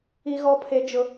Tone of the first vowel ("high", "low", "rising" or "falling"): high